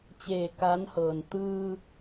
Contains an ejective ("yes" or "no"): no